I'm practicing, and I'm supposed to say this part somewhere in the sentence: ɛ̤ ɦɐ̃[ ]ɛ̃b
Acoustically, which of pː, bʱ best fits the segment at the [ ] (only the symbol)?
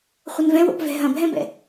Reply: bʱ